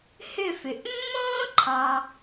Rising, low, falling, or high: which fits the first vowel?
falling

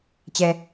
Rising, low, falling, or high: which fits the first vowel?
low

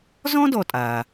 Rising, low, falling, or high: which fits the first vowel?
high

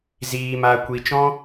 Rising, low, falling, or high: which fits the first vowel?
low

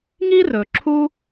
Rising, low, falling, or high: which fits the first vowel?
high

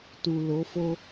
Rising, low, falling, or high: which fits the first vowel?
low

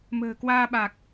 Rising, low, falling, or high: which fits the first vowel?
low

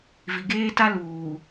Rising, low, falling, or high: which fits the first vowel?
low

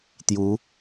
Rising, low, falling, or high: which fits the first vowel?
rising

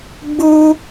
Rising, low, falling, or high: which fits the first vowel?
high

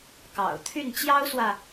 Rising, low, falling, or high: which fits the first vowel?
low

